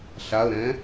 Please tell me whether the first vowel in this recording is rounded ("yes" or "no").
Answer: no